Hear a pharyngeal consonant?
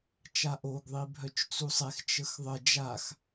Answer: no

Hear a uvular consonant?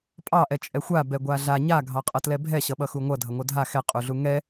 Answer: yes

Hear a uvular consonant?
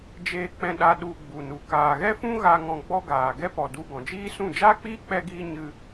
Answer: no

